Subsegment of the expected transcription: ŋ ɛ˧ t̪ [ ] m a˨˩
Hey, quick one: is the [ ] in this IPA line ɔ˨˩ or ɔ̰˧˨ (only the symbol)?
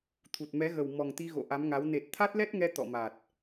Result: ɔ̰˧˨